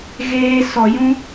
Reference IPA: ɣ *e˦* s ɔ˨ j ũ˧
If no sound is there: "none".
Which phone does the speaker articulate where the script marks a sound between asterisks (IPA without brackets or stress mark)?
eː˦